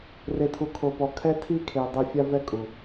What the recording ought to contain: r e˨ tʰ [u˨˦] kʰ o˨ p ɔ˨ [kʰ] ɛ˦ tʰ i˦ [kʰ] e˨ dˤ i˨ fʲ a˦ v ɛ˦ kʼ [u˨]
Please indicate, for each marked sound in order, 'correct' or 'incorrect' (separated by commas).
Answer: incorrect, correct, correct, correct